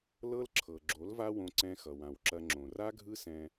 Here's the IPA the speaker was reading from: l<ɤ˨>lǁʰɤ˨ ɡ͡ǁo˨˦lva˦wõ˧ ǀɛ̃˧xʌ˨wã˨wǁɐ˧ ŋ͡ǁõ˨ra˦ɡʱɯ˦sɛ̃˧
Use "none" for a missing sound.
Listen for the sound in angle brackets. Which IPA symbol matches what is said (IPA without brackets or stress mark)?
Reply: ɤ˦